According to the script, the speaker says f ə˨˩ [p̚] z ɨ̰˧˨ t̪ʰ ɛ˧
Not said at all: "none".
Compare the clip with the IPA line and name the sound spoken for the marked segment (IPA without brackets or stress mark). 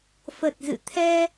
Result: t̚